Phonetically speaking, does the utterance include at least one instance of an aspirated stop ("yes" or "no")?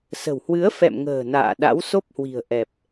no